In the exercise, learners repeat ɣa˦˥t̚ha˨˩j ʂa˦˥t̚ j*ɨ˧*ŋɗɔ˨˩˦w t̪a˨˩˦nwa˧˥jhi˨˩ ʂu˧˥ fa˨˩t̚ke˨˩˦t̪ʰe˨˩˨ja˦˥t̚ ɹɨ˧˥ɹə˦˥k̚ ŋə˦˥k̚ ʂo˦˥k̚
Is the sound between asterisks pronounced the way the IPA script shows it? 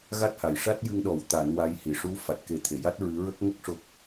yes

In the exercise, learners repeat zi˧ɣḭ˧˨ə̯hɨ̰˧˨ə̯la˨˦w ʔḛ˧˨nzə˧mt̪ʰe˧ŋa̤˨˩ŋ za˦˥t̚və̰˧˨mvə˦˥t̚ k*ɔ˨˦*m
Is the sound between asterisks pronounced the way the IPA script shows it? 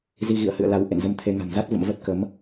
no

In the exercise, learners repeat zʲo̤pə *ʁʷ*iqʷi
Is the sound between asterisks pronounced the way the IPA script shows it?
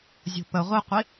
yes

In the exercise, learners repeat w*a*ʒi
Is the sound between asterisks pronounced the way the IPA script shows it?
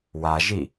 yes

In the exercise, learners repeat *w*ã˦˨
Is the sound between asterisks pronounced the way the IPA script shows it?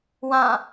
yes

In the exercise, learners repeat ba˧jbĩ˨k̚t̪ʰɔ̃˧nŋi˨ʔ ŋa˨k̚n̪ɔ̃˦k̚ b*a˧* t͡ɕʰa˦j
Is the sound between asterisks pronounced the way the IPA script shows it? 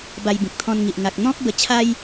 no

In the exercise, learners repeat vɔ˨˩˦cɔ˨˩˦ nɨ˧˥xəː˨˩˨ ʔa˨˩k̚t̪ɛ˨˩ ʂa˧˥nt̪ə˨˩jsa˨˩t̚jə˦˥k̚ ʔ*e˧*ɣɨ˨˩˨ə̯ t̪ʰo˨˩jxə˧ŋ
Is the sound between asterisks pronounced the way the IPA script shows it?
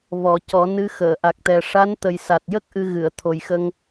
no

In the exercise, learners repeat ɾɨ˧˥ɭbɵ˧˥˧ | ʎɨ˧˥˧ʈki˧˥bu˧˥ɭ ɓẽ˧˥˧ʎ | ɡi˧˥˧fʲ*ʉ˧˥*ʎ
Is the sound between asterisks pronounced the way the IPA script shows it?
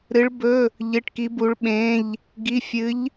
no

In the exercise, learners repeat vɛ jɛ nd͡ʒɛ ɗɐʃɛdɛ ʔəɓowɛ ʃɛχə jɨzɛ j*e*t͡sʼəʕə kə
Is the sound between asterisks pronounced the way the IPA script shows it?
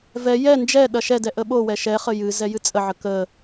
no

